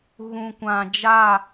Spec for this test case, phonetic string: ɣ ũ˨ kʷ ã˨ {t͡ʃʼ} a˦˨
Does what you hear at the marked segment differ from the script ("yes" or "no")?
yes